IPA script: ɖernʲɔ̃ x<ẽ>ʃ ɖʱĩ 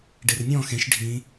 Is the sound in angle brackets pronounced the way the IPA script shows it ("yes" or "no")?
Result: yes